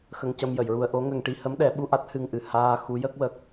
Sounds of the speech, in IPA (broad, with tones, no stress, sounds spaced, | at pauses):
x ə˧ ŋ c ə˧ m j ə˨˩˨ j ɹ u˧ ə̯ ʔ o˧˥ ŋ ə˧ ŋ ʈ i˧ h ə˧˥ m ɗ ɛ˨˩˦ ɓ u˧ ʔ a˦˥ t̚ h ɨ˧ ŋ ʔ ɨ˨˩ h aː˧ x u˧˥ j ə˦˥ k̚ w ə˦˥ k̚